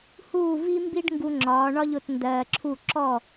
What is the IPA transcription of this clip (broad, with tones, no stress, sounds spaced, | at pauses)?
h uː˥˩ v i˥ m b i˥ ɖ ŋ ɡ u˧ ŋ͡ǁ ɒː˩˥ ɳ ɒ˥ ʎ ʊ˩˥ t n d ɜː˧ ǁʰ u˥˩ ǁ ɔ˥˩